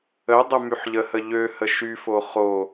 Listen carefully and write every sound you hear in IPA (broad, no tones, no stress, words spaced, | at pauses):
ədˤə myħʎəhə ʎøhə ʃyfo χo